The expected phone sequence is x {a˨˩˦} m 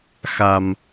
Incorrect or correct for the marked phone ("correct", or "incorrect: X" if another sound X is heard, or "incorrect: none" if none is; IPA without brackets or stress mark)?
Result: incorrect: a˨˩